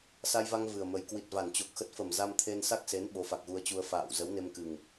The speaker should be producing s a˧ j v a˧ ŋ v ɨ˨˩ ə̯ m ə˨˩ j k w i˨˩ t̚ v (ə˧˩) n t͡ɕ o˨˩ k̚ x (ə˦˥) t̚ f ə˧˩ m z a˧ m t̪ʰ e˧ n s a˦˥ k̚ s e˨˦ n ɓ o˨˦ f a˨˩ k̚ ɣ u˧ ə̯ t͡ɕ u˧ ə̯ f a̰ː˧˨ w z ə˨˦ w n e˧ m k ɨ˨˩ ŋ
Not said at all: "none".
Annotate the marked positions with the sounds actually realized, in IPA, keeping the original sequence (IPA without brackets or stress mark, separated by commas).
a˧˩, ə˦˥